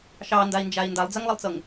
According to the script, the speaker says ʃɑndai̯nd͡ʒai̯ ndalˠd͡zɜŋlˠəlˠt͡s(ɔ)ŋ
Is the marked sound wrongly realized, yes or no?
yes